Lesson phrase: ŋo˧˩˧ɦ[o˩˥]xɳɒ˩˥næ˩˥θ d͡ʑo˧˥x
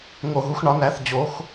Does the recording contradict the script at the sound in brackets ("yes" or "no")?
yes